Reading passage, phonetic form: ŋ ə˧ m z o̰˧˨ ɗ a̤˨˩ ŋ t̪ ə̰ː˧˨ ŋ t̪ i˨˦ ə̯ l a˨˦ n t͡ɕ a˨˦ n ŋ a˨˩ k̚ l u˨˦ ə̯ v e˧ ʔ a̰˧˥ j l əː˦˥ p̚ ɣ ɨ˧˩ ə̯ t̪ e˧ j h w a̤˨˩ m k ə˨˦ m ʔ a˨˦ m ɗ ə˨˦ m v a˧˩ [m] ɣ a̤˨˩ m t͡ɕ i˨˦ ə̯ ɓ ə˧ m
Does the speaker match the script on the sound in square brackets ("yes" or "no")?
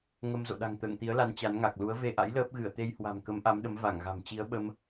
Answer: no